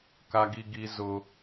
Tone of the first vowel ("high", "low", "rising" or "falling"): high